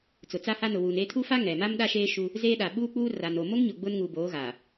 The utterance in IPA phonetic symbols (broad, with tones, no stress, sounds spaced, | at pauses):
t͡s ʊ˨ t͡s a˦ h a˦ n ʊ˨ w uː˨ n eː˦ tʰ u˦ f a˦ ŋ ɛ˨ m a˦ m ɗ a˦ ʃ eː˦ ʃ u˦ | z eː˦ ɗ a˨ ɓ uː˦ k͡p uː˦ r a˨ n o˨ m o˦ ŋ ɲ ʊ˨ ɡ͡b ʊ˦ n ŋ uː˨ b oː˨˦ ɣ aː˨